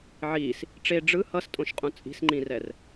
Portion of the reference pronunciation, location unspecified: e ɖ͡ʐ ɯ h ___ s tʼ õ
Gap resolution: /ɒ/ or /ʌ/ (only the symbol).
ʌ